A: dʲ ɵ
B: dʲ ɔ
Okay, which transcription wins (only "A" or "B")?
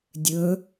A